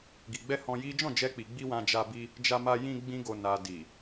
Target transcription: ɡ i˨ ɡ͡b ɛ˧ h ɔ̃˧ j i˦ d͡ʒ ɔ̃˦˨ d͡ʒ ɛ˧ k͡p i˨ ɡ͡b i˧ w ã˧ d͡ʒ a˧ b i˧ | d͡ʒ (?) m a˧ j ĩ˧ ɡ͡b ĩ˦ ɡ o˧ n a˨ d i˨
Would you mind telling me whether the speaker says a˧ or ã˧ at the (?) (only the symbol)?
a˧